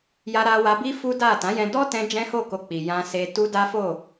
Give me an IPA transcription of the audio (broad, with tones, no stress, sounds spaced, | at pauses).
j a˧ ɾ a˧ w a˧ b i˦ f u˦ d a˦˨ t ã˨˦ j ɛ̃˧ d ɔ˦ t ɛ̃˧ d͡ʒ ɛ̃˦ h o˦˨ k o˧ k͡p i˨ j ã˧ s e˧ t u˦ d a˦ f o˦˨